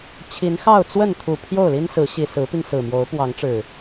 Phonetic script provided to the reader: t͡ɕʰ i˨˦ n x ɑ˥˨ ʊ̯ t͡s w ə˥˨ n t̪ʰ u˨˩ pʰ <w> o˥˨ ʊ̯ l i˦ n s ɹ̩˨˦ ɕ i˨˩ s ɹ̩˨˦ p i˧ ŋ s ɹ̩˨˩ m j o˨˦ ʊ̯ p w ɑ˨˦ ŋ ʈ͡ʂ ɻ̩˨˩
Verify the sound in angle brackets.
incorrect: j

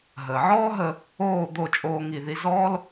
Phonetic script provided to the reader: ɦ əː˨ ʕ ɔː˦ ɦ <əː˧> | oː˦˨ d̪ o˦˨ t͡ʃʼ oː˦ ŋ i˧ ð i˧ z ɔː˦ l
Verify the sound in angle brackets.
incorrect: ə˧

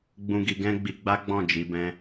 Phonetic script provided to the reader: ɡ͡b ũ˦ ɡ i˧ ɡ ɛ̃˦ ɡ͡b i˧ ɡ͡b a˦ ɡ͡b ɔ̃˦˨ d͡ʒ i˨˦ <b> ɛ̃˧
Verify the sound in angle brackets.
correct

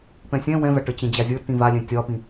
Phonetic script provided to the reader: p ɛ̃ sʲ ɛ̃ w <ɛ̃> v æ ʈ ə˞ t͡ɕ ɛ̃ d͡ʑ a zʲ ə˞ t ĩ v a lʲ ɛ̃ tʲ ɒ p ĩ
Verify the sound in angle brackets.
correct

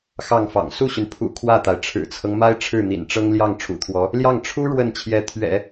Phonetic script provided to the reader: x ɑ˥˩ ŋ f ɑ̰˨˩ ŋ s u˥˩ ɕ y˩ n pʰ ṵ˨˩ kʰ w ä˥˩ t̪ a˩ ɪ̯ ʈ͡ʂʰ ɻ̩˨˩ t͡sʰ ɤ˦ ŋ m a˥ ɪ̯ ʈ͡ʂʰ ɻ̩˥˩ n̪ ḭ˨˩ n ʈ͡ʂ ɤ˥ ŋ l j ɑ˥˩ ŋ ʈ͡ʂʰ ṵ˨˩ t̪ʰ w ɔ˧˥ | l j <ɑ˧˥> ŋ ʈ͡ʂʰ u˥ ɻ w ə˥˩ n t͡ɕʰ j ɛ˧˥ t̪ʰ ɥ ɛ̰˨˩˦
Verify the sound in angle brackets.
incorrect: ɑ˥˩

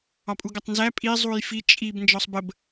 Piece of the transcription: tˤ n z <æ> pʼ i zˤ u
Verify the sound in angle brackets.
correct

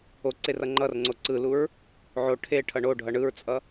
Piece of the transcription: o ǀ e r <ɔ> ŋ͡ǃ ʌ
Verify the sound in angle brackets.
incorrect: ʌ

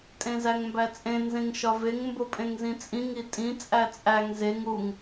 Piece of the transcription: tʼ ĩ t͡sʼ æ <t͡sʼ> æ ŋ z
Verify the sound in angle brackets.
correct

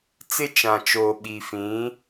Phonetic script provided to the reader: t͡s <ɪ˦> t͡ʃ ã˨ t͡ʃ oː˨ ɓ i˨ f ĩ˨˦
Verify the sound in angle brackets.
correct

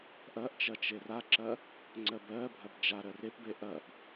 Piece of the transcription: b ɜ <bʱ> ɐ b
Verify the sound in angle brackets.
correct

